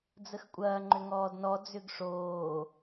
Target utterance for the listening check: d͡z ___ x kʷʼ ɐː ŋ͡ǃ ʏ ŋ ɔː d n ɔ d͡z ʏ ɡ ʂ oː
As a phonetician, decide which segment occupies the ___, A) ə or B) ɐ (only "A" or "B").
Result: A